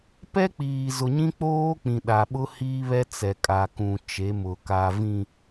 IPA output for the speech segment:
p ɛ˦ k͡p iː˨ z ʊ˨ ɲ ĩ˦ k͡p oː˦ k͡p ĩ˨ ɗ a˨ ɓ ʊ˦ h iː˦ β ɛ˦ t͡s ɛ˨ kʼ a˨ k ũ˨ t͡ʃ e˨˦ m ʊ˨ k a˨ v ĩ˨

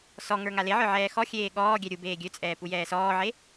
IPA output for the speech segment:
s ɔ ŋ ə˞ ŋ a l e ʕ ə˞ ʕ ɛː x ɔ xʲ eː ɠ ɔː ɡʲ ɛ ɾʲ u b eː ɡʲ ø t͡sʼ ɛː p u j ɛː s ɔː ʕ e

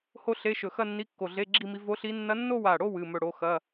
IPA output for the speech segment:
h o˥˧ ɬ e˧˥˧ ʃ ɵ˧˩ x ɐ˥˧ nː i˧˥˧ kː o˧˩ ɮ e˧˥˧ ɡ͡ǁ i˥˧ m i˧˥ v o˧˥ ɬ i˧˥ nː ɐ˧˥ nː o˥˧ w a˧˩ ɽ o˥˧ w ɨ˧˥˧ m ɵ˥˧ ɽ o˧˥ x ɐ˧˥˧

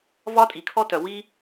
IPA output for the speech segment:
v ɒ˥ tʼ i˩ kʰ ɔ˥ t œ˩ w i˥

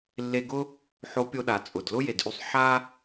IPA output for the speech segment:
lː e˧ ɡ ʊ˥ | ħ o˧˥ pʲ o˧ ɗ a˩ t͡sʼ ʊ˩ d l ʊ˥ j e˩ d ʔ y˧ sˤ ħ a˥

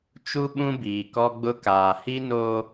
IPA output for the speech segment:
t͡ʃ u˦ ɓ ũ˦ b iː˨ k ɔ˦ ɡ͡b ʊ˦ k aː˨ h i˦ n oː˦

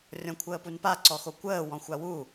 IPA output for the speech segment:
rʲ ɔ̃ kʷʰ əː p u n p a ǀ ɔ x o kʷ əː w ɔ̃ xʷ a w u

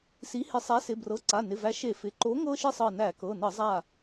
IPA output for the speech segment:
s i˨˥ h ɪ˧˩˧ sˤ æ˨˥ s ɪ˩˧˩ b r ɤ˩˧˩ ǀ a˩˧˩ n ɪ˩˧˩ v æ˨˥ ʃ e˧˩˧ f ɪ˩˧˩ ǃ o˨˥ ŋ ɤ˦ ʃ ɪ˦ sˤ ɤ˧˩ n æ˧˩˧ k ɤ˩˧˩ n ɤ˧˩˧ zˤ a˧˩

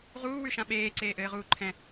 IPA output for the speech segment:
ʁ uː w ʉ ʃ ã ɓ eː ǀ eː ʔ ɘː ʁ uː ǃʰ ɛ̃

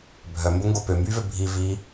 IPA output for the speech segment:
bʱ œ m b o ŋ ɡ o p ø m b yː v ø bʱ i v i

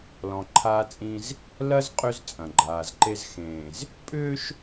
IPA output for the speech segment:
l ɔ̃˨ ǃʰ aː˦ t͡sʼ ĩ˦ z | l ɐ˦ z qʼ ʏ˦ z t͡sʼ ɐ̃˨ ɡ͡ǃ aː˨ z ǃ e˦ z x ẽː˨ z | pʼ ʏː˦ ʃ

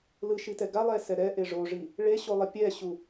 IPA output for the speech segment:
l ɯ ʃ i t ɛ ɡ a lˠ ɛ s ɛ ɾ ɛ ʔ e ʐ o ʐ i | ɭ e ɕ o lˠ ʌ pʲ ɛ ɕ u

